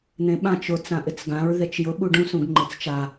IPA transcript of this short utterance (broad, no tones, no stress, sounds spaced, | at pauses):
n̪ ẽ ɓ ã t͡ʃ ʊ t͡s ã ʔ ɪ t͡s ɡ ã ɹ ð e t͡ʃ j ʊ ɓ u ɖ ũ s ũ ɡ ŋ͡ǃ ɪ t͡s t͡ʃ a